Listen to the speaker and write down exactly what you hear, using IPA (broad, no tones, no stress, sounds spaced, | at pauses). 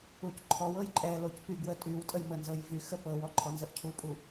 u c ǃʰ ɔ w ɤ j ǃʼ ɛ l o c p y ɡ w ə tʼ y w tʼ ə j m ə n z ɤ j v y x ə p ɤ w ɔ ǃʰ ɔ n z ə ʔ cʰ u pʼ u